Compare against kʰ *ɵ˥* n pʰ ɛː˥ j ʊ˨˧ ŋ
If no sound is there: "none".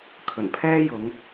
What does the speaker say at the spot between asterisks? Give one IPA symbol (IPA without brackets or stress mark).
ɵ˨˩